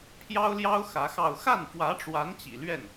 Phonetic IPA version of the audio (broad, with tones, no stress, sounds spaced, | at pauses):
pʰ j ɑ˥ ʊ̯ l j ɑ˥ ʊ̯ x ä˧˥ x ɑ˥˧ ʊ̯ x a˥˩ n f w ä˧˥ ʈ͡ʂ w a˧˥ n t͡ɕ ḭ˨˩ l ɥ ɛ˥˩ n